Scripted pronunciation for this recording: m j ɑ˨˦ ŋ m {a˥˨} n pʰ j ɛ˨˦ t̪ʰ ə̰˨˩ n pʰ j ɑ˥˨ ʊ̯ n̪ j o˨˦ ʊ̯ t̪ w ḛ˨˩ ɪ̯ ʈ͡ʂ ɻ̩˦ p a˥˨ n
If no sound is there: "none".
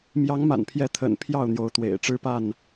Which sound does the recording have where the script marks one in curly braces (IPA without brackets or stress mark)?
a̰˨˩